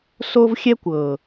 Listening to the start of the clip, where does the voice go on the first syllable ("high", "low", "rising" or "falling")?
high